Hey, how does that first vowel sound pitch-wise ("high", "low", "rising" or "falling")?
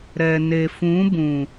low